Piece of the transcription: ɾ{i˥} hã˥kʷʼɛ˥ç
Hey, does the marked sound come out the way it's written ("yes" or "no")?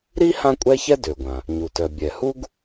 yes